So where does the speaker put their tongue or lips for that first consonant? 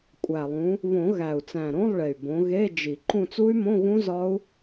velum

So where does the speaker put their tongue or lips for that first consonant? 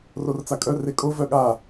tongue tip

